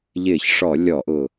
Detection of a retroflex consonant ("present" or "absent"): present